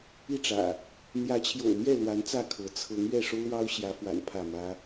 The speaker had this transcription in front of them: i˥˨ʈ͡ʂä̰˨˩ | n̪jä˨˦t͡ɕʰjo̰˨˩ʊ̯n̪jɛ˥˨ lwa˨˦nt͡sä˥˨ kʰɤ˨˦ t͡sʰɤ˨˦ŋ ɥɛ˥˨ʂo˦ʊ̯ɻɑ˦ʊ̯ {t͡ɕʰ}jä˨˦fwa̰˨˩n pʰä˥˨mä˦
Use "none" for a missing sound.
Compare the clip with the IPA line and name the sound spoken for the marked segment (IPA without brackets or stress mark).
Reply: ɕ